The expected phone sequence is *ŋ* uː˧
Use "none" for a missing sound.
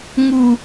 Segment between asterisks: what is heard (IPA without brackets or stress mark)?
ŋ